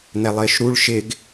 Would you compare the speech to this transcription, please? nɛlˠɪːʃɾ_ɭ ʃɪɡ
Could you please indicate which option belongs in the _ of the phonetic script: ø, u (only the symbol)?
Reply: u